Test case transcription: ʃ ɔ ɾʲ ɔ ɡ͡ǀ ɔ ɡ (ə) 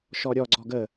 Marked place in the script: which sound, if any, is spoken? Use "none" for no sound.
ə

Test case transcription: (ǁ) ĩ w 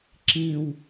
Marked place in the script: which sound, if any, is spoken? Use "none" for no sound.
ǁ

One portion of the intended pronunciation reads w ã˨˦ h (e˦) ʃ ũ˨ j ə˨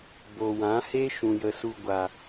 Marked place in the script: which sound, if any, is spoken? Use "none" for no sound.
e˦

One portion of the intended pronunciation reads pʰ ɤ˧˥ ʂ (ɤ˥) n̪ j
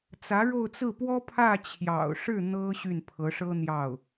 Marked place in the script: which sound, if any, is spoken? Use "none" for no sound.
ɤ˥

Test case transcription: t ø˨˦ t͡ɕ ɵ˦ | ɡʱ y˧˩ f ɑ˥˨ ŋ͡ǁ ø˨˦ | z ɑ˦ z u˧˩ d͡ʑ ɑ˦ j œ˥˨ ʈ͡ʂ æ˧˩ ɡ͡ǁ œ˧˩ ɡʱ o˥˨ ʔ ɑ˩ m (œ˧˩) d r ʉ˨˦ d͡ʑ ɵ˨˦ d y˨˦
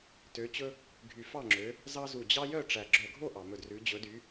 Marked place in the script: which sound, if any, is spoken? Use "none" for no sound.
ɵ˧˩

